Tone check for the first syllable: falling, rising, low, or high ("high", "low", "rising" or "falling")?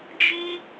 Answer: high